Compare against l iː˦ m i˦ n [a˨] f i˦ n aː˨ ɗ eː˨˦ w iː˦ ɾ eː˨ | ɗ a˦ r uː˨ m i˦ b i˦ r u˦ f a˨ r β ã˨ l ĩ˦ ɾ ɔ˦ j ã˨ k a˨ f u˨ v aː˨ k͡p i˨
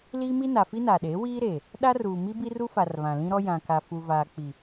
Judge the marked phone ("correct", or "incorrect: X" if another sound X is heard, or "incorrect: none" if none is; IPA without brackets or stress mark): correct